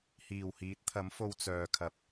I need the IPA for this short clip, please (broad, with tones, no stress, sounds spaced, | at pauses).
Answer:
h iː˨˩ w h iː˨˥ t̚ t̪ʰ ɐ˨˥ m f o˧ w t͡s œː˨ kʰ ɐ˨ p̚